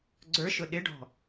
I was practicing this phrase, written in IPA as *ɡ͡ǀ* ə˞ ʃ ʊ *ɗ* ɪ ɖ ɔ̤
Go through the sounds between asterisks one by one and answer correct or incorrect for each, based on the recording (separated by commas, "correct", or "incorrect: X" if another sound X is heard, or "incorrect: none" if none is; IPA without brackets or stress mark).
correct, correct